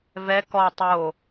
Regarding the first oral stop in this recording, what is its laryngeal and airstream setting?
plain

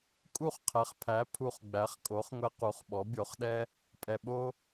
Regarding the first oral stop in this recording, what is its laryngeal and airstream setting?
ejective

